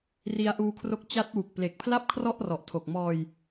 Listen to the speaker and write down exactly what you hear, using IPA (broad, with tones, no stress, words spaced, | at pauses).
ri˧a̯ʔuː˧kʰro˦˥k̚ t͡ɕa˦˥t̚wu˨˩k̚ ple˨˩k̚pʰla˥˩p̚kʰrɔ˥˩ʔrɔ˨˩ʔ tʰo˨˩k̚mɔː˧j